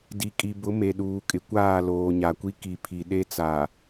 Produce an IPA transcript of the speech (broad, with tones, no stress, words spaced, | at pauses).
di˨kʼi˨bʊ˨˦ me˨ɗuː˨kʼɪ˨kʷaː˦˨ loː˨ɲa˨kʷi˦ ki˨pʰi˨ ɗe˦t͡sa˨